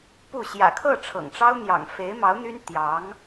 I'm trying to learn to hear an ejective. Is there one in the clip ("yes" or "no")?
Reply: no